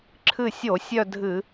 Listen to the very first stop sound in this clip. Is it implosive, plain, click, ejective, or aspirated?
click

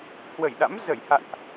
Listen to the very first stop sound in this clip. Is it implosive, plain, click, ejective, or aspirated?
implosive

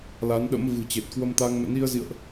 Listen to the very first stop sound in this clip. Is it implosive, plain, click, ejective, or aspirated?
implosive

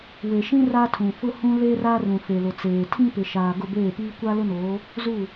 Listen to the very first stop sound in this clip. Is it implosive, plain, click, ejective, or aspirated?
aspirated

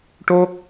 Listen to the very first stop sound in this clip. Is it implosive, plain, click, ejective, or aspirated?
plain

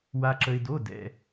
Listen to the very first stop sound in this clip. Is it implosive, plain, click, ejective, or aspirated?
click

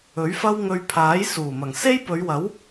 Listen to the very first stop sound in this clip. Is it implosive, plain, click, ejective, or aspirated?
aspirated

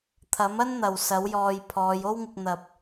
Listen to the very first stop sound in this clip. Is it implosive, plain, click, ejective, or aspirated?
aspirated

